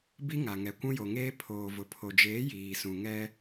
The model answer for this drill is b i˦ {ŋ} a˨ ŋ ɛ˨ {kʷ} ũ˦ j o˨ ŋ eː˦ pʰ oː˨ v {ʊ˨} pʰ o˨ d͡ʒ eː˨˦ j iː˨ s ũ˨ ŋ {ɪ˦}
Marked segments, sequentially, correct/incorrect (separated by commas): correct, correct, correct, incorrect